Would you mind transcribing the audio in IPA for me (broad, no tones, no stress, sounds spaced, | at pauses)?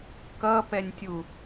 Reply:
k ʌ p ɛ nʲ tʲ u